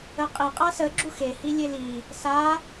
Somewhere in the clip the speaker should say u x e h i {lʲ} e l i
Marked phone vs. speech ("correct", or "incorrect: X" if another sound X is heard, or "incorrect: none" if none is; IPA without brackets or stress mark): correct